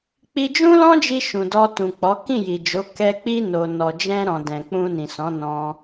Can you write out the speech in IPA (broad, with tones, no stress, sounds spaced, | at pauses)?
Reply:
k͡p i˧ d͡ʒ ũ˦ l ɔ̃˦ d͡ʒ i˧ ʃ ũ˨ d ɔ˧ t ũ˨ k͡p ɔ˨˦ k ĩ˦˨ j i˨ d͡ʒ o˨˦ k ɛ˧ k͡p i˧ n o˨ n ɔ˨ d͡ʒ ɛ̃˧ ɾ ɔ̃˨ d ɛ̃˨ k͡p ũ˧ n ĩ˨ s ɔ̃˨˦ n ɔ̃˦